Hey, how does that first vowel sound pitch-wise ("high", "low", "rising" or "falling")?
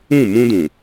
falling